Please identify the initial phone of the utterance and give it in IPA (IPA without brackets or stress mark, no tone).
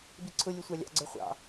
b